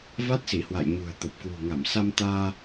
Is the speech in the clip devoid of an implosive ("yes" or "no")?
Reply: yes